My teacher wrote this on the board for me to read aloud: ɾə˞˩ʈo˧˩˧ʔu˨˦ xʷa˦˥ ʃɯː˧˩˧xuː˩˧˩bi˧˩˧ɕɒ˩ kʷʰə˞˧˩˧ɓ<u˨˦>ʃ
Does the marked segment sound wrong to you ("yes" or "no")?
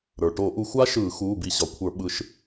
yes